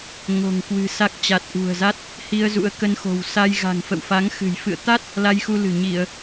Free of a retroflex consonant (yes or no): yes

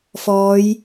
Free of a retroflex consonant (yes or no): yes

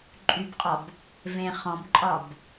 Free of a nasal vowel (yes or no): no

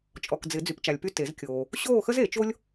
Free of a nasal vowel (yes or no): yes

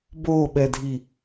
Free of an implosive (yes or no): no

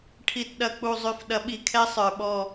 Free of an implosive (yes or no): no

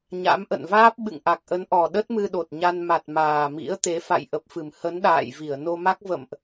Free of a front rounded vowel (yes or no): yes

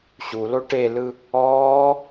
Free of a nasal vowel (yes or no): yes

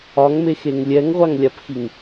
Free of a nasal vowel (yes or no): yes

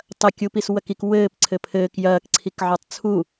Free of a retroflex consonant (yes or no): yes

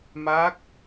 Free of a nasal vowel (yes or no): yes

